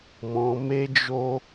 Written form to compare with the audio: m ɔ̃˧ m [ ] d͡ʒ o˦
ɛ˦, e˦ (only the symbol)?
e˦